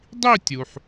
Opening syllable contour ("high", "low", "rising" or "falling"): falling